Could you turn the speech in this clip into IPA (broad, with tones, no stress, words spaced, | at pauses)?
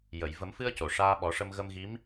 jə˨˩˨jvə˨˩˦mfɨ˧ə̯ co˨˩ʂaː˧ɓɔ˨˩˦ʂə˧m ɣə˧mɣi˧˥m